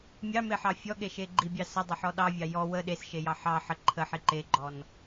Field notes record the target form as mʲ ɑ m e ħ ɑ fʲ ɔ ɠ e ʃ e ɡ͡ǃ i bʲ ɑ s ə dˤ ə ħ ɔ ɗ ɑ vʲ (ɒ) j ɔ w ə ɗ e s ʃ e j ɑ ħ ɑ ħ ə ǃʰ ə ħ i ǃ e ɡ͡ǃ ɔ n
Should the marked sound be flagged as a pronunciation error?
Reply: yes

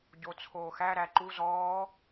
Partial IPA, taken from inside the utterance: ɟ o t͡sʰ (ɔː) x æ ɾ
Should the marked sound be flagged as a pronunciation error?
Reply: yes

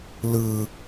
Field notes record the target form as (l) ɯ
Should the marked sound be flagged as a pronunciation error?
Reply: no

